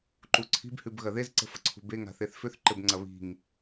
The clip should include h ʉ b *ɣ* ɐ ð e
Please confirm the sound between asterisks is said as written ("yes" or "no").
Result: yes